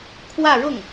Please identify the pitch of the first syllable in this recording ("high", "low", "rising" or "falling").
falling